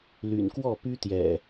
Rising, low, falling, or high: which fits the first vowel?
low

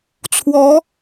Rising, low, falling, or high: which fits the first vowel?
rising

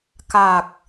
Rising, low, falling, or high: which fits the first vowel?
low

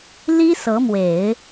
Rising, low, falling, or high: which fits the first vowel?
high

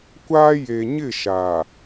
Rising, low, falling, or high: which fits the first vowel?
high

